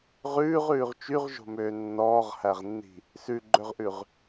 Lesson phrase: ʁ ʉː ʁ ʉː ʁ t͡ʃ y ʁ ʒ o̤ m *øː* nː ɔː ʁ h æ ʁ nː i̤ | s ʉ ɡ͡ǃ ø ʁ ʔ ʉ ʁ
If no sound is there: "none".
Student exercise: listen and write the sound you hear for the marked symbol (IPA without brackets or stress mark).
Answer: øː